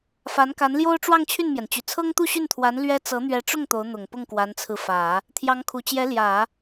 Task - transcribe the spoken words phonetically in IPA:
f a˧˥ n k a˧˥ n l j o˥ ʊ̯ ʈ͡ʂ w ɑ˥˧ ŋ t͡ɕʰ y˥˩ n m j ɛ˩ n t͡ɕ y˨˩ t͡sʰ ɤ˥ ŋ t̪ u˥˧ ɕ y˥˩ n t̪ʰ w a˧˥ n l ɥ ɛ˥ t͡s ɤ˧˥ n̪ ɥ ɛ˧˥ ʈ͡ʂ ʊ˥˩ ŋ t̪ o˧˥ ʊ̯ n̪ ʊ˨˩ ŋ p ʊ˥˩ ŋ k w a˧˥ n t͡sʰ ɹ̩˧ f ä˨˩˦ | t̪ʰ j ɑ˧˥ ŋ kʰ u˨˩ t͡ɕ j ɛ˧˥ l j ä˨˩˦

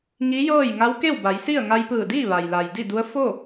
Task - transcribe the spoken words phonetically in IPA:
ŋ i˧˥ j ɤː˥˨ j ŋ a˧˥ w k e˥˨ w b a˩˧ j s i˥˨ ə̯ ŋ a˧ j p ɯː˧˩ d iː˥˨ ʋ a˩ j l a˩ j d i˥˨ d u˧˥ ə̯ f o˥˨

